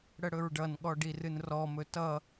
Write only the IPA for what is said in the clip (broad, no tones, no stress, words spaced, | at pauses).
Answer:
ɽəɽɵɹɖʌnɠɔ ɖirɨnrɔmɵ tʌ